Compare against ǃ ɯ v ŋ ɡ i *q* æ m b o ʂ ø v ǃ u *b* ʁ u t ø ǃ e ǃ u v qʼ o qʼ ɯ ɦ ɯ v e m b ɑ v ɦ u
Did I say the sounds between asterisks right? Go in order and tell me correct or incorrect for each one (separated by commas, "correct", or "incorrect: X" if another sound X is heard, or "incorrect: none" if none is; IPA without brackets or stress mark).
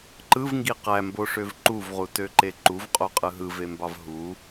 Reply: correct, incorrect: v